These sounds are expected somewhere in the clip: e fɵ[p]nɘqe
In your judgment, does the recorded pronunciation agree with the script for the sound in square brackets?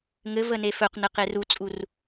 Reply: no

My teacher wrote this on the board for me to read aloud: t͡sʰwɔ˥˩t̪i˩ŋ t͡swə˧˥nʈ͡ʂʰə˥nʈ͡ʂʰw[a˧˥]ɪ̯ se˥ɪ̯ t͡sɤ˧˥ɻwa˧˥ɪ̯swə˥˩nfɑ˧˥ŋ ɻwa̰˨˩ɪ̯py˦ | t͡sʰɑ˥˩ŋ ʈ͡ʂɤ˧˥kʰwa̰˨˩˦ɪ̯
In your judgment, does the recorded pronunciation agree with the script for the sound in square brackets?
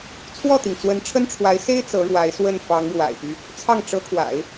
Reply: yes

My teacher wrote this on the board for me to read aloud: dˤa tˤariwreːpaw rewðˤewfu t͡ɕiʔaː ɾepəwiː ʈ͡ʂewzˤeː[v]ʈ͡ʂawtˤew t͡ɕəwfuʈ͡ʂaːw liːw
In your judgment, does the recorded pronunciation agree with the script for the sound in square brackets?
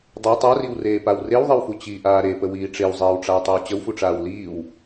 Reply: no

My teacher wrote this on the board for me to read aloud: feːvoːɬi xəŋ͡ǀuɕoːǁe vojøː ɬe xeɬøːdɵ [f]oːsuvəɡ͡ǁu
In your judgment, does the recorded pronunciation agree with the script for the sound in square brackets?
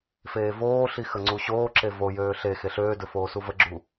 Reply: yes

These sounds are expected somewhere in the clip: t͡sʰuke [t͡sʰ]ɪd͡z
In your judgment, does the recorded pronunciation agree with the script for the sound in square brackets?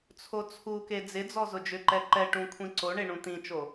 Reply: no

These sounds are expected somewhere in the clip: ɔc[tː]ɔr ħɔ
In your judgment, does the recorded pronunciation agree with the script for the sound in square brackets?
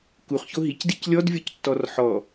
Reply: yes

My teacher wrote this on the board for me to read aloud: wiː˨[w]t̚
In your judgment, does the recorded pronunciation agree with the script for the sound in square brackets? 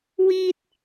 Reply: no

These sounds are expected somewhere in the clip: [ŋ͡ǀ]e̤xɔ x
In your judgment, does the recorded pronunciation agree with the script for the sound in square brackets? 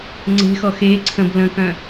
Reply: yes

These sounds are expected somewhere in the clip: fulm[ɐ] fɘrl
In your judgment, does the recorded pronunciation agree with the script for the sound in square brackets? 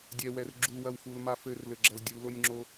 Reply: no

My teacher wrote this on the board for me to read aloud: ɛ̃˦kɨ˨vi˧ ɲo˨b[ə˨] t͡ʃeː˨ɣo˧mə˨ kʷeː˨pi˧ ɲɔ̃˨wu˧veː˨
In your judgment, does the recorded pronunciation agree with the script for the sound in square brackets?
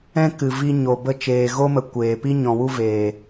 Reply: no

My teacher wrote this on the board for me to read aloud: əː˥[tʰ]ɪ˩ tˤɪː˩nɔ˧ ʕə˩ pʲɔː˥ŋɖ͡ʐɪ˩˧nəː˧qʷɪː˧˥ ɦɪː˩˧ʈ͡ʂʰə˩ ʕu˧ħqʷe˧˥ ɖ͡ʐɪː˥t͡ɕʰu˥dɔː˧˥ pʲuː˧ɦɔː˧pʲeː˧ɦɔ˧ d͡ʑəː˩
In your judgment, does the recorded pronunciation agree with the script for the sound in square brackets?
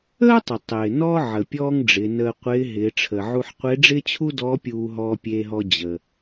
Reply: no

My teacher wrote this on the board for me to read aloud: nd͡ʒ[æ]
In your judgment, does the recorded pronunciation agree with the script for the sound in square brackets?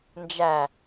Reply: yes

